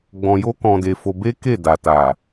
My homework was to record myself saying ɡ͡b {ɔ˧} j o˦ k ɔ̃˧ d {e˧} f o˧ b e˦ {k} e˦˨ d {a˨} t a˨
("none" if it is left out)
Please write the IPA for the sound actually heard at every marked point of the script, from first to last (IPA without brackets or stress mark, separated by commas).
ɔ̃˧, e˧, k, a˨